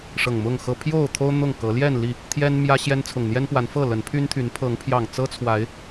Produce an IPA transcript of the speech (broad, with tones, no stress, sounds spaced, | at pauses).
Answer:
ʂ ɤ˨˩ ŋ m ʊ˥˨ ŋ x ɤ˦ pʰ j o˥˨ ʊ̯ t̪ʰ o˦ ʊ̯ n̪ ʊ˥˨ ŋ k ɤ˨˦ l j ɛ˥˨ n l i˥˨ | t̪ʰ j ɛ˦ n m j ä˦ ɕ j ɛ˦ n t͡sʰ ʊ˨˩ ŋ n̪ j ɛ˦ n p w a˨˦ n f ɤ˥˨ l ə˨˦ n pʰ y˦ n t̪ʰ y˨˦ n pʰ ɤ˨˦ ŋ pʰ j ɑ˨˩ ŋ t͡s ɤ˦ t͡sʰ w a˨˦ ɪ̯